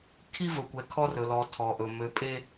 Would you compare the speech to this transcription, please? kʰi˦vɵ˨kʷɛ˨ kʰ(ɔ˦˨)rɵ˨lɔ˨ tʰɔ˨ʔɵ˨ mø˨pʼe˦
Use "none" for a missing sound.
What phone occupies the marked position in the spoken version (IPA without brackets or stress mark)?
ɔ˦